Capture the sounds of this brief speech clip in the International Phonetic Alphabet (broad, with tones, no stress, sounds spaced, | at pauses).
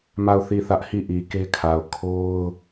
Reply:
m a˦˨ ʊ̯ θ i˦˨ θ ä˦ ʔ h i˦˨ ʔ i˨ k e˦ kʰ a˨ ʊ̯ kʰ o˦ ʊ̯